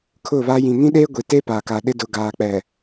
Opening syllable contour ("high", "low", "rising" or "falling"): falling